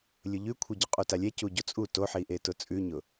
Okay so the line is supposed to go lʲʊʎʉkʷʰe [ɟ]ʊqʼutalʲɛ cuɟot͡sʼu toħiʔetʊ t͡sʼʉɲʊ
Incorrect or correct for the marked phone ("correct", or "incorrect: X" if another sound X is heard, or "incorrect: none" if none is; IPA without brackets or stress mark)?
correct